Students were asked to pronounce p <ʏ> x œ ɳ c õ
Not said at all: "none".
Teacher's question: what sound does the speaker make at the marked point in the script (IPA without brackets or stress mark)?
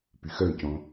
y